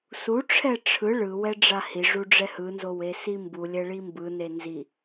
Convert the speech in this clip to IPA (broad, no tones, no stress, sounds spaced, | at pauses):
s u ʈ͡ʂʰ ɛ ʈ͡ʂʰ ɯ ɭ ɯ w ɛ ɖ͡ʐ a h i ʐ u ɖ͡ʐ ɛ h ɯ n z o w e s i m b u lʲ ɛ ɭ i m b ɯ n e n z i